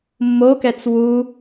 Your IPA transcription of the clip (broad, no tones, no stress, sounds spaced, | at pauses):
mː o k ɛ t͡s w u